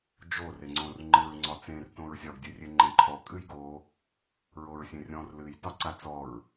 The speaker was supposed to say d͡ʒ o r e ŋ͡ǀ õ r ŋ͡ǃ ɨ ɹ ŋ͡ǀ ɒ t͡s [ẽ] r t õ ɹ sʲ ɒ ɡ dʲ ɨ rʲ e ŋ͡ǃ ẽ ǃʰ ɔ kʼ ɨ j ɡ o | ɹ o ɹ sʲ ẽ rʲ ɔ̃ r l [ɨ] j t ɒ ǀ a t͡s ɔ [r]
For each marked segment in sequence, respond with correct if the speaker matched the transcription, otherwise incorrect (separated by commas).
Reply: correct, correct, incorrect